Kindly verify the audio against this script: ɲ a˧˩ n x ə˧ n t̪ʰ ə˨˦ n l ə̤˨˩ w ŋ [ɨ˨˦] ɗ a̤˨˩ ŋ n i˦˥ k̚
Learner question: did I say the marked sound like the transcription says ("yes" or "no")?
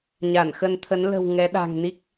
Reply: no